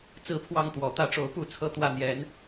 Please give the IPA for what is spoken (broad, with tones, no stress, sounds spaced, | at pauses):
t͡s ɹ̩˦ pʰ w ɑ˥˨ ŋ t̪ w ɔ˨˩ t̪ ä˦ ʈ͡ʂ o˨˦ ʊ̯ p u˥˨ t͡sʰ ɤ˦ t̪ w ä˥˨ n̪ j ɛ˨˦ n